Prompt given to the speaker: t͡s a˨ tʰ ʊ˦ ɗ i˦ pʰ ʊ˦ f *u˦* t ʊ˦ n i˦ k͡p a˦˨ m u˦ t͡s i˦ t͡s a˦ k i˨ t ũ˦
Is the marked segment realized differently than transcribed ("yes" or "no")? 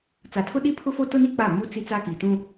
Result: yes